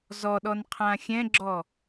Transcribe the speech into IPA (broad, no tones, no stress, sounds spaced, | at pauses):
z ɔ ɗ ɔ n qʰ ã xʲ ɛ̃ ɡ͡ǁ ɔ